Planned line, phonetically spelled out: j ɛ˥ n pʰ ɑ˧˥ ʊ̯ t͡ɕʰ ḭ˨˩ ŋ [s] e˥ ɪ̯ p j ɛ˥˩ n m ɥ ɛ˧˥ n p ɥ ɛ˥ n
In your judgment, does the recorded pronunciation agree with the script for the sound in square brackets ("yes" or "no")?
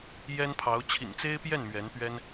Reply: no